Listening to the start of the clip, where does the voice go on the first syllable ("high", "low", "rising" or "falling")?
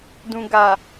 low